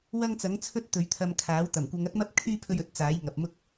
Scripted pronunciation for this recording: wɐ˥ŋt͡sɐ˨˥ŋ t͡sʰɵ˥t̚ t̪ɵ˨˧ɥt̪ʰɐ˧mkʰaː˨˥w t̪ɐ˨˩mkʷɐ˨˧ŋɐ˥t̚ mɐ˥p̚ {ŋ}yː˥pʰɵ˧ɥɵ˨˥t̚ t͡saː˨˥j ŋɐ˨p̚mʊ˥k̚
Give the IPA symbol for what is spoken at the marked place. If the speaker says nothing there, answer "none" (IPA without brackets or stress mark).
kʰ